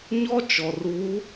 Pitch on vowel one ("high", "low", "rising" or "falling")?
high